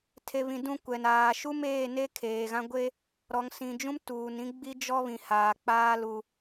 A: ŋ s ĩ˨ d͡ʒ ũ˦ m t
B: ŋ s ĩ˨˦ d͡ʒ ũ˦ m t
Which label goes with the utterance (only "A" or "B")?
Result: A